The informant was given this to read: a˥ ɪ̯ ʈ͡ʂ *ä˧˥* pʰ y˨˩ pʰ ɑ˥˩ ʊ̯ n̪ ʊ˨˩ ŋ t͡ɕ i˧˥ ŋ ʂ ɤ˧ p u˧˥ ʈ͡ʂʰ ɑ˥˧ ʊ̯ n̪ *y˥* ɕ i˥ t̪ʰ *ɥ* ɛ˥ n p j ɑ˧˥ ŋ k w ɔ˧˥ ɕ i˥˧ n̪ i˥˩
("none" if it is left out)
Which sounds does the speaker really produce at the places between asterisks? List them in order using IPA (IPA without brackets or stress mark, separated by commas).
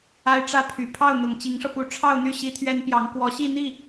ä˥, y˥˩, ɥ